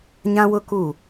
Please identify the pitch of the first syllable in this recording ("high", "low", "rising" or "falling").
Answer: high